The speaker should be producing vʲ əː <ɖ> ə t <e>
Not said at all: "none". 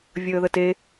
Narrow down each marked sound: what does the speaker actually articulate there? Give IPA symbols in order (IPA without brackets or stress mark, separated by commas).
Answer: ð, e